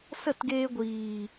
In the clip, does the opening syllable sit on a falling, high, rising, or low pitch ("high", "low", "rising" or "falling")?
falling